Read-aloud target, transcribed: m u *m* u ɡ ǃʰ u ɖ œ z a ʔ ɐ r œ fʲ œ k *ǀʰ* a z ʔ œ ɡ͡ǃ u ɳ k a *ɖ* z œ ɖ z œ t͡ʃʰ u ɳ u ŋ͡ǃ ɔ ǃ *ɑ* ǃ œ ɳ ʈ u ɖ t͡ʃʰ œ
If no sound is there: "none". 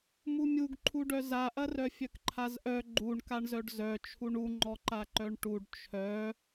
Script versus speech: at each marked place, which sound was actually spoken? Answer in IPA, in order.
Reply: mʲ, ǃʰ, ɳ, a

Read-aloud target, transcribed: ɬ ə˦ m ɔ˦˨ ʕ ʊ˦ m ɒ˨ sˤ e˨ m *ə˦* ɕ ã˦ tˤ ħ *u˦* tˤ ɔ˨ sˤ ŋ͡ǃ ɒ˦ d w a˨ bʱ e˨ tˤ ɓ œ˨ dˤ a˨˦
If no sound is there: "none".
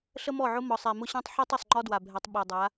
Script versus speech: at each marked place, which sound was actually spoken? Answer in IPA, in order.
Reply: ʊ˦, u˦

